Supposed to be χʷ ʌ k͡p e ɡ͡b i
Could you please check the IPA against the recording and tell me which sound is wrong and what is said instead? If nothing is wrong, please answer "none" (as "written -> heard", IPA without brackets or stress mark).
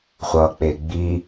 none